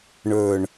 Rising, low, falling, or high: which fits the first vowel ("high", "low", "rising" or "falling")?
low